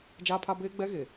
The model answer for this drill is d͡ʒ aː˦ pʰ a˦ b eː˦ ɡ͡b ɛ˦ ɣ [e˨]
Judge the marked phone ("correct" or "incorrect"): correct